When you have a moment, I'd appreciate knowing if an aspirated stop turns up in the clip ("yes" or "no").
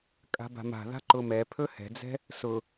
yes